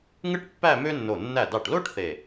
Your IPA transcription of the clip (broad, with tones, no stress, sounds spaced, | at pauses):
ŋ ɯ˥ ʈ pː æ˥˧ m ø˥ nː o˧˩ nː æ˧˩ d ɑ˧˩ ʈ l o˥ ʈ θ e˧˩